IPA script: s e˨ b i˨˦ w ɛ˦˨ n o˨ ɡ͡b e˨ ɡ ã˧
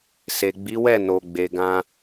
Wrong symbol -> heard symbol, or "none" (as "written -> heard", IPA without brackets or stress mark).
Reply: b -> ɡ͡b